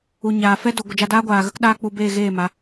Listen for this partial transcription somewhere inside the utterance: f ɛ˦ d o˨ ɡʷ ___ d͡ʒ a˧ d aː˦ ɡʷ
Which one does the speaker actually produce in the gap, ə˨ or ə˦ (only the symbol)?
ə˨